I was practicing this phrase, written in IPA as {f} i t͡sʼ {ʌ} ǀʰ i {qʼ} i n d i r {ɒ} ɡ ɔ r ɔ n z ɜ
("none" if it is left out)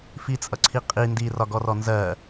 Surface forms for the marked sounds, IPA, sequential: f, ʌ, qʼ, ɒ

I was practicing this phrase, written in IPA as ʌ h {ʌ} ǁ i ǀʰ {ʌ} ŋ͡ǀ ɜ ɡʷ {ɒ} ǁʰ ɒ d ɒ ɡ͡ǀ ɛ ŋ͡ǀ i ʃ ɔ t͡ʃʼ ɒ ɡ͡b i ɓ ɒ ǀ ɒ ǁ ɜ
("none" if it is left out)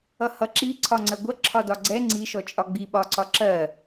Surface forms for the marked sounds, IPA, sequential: ʌ, ɒ, ʌ

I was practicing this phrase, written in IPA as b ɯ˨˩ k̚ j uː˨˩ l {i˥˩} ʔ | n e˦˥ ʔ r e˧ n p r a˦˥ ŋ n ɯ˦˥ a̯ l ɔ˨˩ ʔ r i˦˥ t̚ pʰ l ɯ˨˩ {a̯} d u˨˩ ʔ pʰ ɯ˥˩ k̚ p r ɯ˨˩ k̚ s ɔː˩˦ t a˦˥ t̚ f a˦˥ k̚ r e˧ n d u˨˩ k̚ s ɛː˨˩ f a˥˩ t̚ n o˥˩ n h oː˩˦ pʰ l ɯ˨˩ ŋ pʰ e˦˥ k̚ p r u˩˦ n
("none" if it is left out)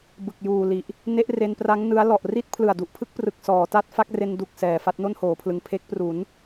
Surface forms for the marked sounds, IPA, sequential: i˨˩, a̯

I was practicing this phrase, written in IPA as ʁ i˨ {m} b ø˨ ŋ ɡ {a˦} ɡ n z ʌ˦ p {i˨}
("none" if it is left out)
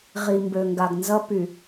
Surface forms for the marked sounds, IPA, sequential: m, a˨, y˨

